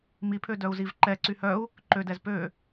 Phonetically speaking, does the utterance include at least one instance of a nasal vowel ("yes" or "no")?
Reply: no